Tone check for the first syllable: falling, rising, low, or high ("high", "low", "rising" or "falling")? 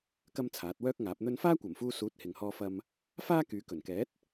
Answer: high